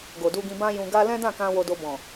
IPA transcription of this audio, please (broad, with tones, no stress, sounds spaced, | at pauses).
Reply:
ɡ o˨ d u˧ ɡ ĩ˧ b ã˦ j ũ˧ ɡ a˦ l ɛ̃˦ d ã˦˨ k ã˧ w o˧ d o˧ b ɔ̃˨